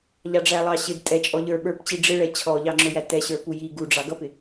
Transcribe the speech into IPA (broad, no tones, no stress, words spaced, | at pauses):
ʎɑɖ͡ʐælˠɑɕɪd tʼɛ t͡ʃʼɔʎə˞ ɓə˞pt͡ɕi ɖ͡ʐɪɭɛ t͡ɕʰɔʎɑŋ͡ǁʊjæ tɛɕə˞ puji ɡuɖ͡ʐɑ ɡʌpɪ